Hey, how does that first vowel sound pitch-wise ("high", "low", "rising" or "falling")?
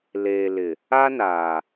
low